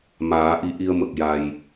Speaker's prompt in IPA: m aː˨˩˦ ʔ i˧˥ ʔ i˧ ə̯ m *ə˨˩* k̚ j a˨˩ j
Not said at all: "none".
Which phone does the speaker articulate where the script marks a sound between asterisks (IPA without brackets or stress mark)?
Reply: ə˨˩